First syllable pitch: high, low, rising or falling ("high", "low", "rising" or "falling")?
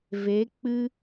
rising